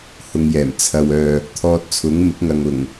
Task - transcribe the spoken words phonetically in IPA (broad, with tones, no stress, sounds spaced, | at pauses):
h ʊ˧ ŋ j ɛː˨˩ m t͡sʰ ɐ˨ w œː˨ | t̪ʰ ɔː˧ t̚ t͡sʰ ʊ˨˥ ŋ m ɪ˨˥ k̚ ŋ ɐ˨ ŋ ʊ˨˩ ŋ